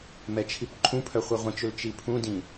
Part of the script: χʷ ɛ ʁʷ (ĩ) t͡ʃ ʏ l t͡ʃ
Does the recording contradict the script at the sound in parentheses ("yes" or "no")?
no